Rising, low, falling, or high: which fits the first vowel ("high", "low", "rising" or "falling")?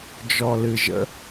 low